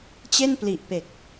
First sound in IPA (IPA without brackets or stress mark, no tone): t͡ɕ